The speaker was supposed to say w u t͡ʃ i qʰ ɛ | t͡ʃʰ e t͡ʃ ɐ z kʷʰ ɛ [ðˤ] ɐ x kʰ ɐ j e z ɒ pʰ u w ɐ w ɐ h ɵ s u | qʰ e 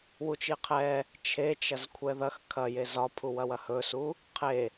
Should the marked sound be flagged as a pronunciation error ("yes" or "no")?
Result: yes